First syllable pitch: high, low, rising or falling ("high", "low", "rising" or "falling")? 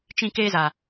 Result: high